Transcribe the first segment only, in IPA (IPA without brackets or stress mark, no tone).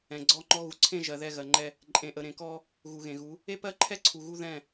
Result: ɛ̃